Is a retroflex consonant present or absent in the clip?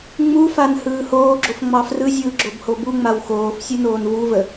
absent